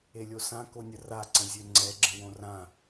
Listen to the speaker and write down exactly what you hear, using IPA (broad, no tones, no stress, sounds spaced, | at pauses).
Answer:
e lʲ o s ã k o nʲ ə r a ǀ ə̃ zʲ ø ŋ͡ǀ ɛ ɡ͡ǁ ə̃ w õ r ã